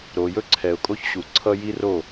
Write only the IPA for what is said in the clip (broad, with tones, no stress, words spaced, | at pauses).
ɾo˨jɵ˦ǀʰɛ˨ʊ̯kʼo˦ç ɕu˨ ǀʰʌ˦ji˦ro˦˨